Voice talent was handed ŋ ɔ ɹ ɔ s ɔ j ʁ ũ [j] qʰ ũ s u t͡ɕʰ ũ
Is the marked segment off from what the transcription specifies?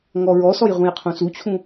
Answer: no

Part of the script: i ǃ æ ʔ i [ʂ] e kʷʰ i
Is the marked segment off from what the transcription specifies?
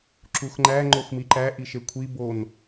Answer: yes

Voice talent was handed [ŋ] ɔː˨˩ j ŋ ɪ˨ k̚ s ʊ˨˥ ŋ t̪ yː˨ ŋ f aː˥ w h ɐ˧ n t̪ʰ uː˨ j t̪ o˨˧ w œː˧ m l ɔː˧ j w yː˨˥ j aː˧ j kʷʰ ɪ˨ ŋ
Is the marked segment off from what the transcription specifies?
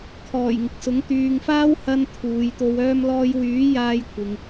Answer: yes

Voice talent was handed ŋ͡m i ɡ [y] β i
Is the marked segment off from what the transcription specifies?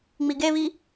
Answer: yes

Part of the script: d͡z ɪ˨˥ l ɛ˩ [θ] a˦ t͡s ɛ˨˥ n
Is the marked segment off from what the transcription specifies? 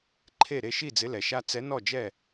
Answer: yes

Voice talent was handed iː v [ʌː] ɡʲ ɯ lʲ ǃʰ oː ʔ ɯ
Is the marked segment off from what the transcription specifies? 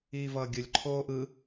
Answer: no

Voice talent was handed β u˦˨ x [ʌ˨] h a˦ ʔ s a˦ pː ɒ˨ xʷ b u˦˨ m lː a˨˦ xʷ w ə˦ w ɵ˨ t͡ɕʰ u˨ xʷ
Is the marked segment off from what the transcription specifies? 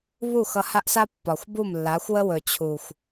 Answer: yes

